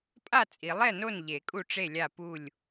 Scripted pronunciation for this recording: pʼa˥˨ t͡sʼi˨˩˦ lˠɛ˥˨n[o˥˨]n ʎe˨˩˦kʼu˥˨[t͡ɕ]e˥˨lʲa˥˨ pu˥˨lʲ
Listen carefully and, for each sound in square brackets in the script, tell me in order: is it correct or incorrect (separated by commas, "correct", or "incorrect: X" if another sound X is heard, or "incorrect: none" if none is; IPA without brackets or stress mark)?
correct, incorrect: ʈ͡ʂ